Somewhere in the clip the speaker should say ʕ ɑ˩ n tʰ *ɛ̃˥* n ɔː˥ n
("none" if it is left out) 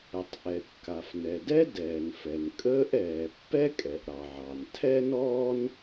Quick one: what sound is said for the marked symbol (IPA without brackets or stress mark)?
ɛ˥